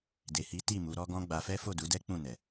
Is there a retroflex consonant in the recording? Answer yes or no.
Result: no